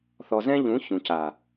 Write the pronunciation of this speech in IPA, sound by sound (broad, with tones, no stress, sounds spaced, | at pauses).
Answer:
θ ɔ˨ z ɛ̃˦ ʎ ũ˨˦ ç ũ˨ c a˨